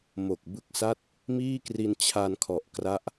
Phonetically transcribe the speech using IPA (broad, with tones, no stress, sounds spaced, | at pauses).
m o˨˩ k̚ b ɯ˦˥ k̚ s a˥˩ t̚ | m iː˥˩ k r i˧ n t͡ɕʰ a˧ n kʰ ɔ˨˩ ʔ k r a˦˥ ʔ